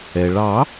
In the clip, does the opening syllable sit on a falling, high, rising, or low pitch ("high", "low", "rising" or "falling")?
low